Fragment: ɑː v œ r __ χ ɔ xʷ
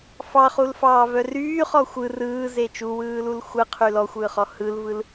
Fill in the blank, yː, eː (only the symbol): yː